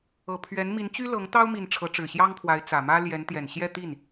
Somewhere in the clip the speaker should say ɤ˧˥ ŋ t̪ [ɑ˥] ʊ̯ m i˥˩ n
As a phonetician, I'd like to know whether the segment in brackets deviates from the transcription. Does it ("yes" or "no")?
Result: no